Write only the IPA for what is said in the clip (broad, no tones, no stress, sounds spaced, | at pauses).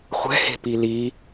χʷ ɛ̤ h e̤ p i l i